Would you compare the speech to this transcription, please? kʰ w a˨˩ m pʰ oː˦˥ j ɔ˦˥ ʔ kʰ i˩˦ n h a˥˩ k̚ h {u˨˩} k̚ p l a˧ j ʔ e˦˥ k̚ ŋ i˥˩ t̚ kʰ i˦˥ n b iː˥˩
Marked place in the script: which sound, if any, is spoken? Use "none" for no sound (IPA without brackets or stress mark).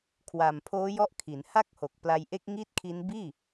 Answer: o˨˩